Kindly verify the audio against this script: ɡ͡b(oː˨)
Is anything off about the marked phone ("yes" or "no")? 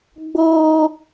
yes